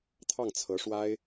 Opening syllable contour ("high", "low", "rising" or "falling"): falling